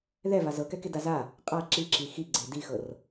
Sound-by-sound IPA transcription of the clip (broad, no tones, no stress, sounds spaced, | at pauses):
ð ɛ v a z ɤ k ɛ k e d a z a | qʼ a ǁ i ǁ i x i ɡ͡ǀ e d i x ɤ r